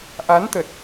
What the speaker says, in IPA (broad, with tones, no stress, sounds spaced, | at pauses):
ʔ a˨˦ n t̪ ə˨˩ t̚